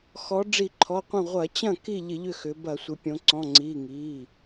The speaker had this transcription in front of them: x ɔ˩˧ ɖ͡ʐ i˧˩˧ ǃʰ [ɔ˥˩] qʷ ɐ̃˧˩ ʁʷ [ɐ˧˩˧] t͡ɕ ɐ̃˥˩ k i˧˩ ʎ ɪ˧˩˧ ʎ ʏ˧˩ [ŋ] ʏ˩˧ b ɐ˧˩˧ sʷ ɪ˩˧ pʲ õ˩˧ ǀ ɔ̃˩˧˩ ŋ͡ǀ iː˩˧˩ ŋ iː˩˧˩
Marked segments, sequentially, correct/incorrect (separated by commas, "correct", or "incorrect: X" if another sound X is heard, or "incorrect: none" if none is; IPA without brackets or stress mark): incorrect: ɔ˩˧˩, correct, incorrect: x